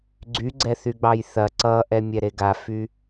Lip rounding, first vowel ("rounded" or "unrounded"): rounded